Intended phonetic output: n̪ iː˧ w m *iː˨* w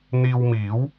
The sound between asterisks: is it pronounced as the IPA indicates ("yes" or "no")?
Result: no